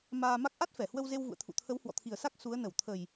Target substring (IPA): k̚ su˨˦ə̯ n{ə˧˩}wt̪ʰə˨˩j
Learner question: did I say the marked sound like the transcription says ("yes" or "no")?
yes